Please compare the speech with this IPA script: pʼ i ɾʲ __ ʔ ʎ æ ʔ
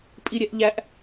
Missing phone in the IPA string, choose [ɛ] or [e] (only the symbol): ɛ